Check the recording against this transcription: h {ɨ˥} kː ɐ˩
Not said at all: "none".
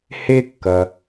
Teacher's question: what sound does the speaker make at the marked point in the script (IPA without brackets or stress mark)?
e˥